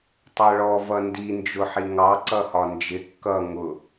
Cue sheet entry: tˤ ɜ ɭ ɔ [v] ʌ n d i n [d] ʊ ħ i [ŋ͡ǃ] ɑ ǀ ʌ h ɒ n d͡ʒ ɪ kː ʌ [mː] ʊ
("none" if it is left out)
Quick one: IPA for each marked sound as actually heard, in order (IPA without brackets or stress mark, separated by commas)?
v, d͡ʒ, ŋ, ŋ